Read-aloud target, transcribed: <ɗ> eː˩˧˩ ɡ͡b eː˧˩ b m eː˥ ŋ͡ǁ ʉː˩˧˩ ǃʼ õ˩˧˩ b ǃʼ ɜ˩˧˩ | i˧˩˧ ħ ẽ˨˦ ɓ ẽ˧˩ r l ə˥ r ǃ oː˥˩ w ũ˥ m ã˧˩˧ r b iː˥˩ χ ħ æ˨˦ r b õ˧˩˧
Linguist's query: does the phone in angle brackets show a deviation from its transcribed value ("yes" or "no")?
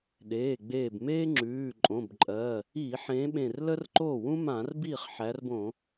no